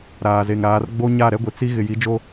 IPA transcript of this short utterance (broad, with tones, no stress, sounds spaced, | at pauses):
ɾ aː˨ z e˨ ŋ ɾ aː˨˦ r ɡ͡b o˦ ɲ a˦˨ ɾ ɛ˦ ɡʷ ɪ˨ t͡s i˦ ɣ ɪ˨ j i˨˦ d͡ʒ o˦